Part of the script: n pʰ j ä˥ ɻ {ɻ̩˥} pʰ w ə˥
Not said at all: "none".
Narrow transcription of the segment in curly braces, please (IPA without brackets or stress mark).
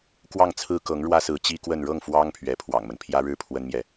ɻ̩˥˩